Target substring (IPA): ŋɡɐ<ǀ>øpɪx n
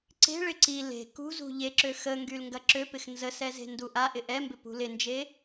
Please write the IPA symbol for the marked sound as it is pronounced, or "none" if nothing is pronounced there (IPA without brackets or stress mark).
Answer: ǁ